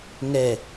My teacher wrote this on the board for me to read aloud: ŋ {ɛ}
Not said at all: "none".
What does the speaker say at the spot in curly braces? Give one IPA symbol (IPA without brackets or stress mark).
ɛ